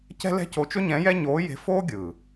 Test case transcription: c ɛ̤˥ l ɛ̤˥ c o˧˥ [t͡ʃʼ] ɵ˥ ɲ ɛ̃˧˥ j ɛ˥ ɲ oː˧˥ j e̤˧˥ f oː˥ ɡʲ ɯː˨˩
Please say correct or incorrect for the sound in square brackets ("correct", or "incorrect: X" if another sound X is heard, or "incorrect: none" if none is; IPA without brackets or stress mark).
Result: incorrect: t͡ʃ